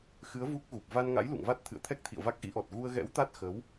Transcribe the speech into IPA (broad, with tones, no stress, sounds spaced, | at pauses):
x ɨ˨˦ ə̯ v u˦˥ k̚ ɣ u˨˩ p̚ v a˧ n ŋ a̰˧˥ j l ṵ˧˨ ŋ v a˦˥ t̚ t̪ʰ ɨ̰˧˨ ə̯ t̪ʰ ɛ˦˥ k̚ t̪ʰ ḭ˧˨ ə̯ v a˦˥ k̚ ʔ ḭ˧˥ ʔ ɔ˨˩ t̚ ɣ u˧ ə̯ ɣ ɛ̰˧˥ w t̪ a˦˥ t̚ x ə˨˦ w